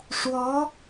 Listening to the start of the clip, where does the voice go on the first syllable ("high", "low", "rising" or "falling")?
rising